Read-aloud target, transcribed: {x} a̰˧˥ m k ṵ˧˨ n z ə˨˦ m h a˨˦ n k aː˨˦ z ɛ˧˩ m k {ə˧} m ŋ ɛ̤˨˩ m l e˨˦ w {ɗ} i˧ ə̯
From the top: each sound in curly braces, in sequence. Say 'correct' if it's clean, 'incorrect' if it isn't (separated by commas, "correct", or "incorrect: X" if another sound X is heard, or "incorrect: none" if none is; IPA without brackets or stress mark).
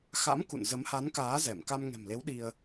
correct, incorrect: a˧, correct